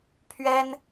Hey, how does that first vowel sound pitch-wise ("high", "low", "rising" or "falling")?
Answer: high